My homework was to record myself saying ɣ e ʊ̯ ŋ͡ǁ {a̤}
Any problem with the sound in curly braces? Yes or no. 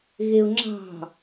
yes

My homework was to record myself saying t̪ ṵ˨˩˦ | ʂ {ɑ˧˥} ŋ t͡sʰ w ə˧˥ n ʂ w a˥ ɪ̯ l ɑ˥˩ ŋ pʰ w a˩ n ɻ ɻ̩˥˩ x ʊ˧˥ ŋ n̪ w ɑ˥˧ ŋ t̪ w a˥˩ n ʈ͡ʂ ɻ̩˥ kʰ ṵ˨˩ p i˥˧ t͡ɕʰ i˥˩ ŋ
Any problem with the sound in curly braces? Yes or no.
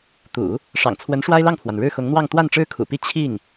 yes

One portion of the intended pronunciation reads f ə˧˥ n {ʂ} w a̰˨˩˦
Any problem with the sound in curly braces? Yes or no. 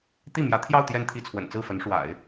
no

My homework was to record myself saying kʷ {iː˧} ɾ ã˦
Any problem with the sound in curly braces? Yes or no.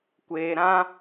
yes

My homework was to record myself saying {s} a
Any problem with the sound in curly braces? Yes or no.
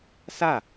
no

